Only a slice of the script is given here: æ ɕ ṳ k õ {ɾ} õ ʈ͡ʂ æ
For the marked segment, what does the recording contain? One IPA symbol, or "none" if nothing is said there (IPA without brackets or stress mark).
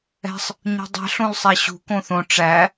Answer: θ